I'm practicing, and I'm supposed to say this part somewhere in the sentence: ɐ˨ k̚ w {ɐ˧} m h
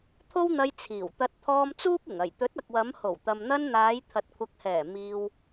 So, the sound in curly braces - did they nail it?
no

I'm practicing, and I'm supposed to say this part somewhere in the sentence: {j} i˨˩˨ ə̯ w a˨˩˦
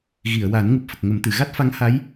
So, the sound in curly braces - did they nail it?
no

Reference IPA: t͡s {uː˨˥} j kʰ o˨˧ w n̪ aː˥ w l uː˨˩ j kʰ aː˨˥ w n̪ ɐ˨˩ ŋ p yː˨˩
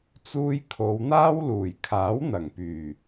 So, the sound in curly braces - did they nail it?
no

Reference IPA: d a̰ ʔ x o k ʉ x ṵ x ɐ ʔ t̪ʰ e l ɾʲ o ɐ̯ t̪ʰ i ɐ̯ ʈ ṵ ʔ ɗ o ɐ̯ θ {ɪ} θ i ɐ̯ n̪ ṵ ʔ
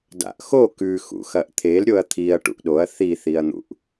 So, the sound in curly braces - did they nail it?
no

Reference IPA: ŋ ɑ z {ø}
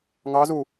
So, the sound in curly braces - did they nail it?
no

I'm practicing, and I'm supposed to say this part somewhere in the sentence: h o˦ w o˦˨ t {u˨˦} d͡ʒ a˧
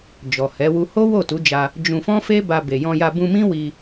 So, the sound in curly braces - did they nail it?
yes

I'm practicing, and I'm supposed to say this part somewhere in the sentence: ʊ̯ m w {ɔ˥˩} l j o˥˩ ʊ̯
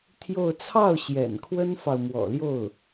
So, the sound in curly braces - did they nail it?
no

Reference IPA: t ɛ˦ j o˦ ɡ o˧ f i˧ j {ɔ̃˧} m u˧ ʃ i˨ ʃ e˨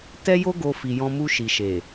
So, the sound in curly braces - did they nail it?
no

